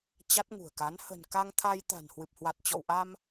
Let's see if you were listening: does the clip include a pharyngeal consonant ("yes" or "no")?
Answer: no